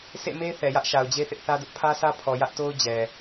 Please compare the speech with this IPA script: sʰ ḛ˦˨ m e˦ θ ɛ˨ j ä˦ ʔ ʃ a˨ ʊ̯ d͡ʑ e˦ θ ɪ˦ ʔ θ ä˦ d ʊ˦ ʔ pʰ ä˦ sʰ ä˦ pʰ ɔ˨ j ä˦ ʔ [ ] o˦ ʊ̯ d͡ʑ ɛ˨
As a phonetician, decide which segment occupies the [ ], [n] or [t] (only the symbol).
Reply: t